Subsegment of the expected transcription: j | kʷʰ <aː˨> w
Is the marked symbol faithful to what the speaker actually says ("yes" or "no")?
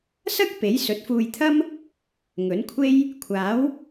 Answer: no